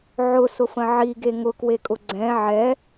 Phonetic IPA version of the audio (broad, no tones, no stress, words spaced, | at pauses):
ʕʊsʊfə̃ ʕiɡe ŋʊkwekʼʊ ɡ͡ǀɛ̃ ʕɛ